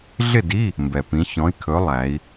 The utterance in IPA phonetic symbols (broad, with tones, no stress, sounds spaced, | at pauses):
ɮ ɪ˥˨ d i˧˥˧ | m b ɛ˩ p ĩ˩˧ ç ɔ̃˩˧ i̯ kʰ ɵ˩˧ lˠ æ˩˧ i̯